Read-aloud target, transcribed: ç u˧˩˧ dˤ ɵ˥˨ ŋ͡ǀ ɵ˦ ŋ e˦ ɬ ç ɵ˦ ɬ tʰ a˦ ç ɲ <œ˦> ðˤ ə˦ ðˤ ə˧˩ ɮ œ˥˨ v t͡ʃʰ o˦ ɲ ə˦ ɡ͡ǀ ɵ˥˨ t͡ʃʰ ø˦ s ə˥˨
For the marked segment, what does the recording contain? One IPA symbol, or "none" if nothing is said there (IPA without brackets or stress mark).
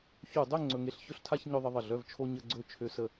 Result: œ˦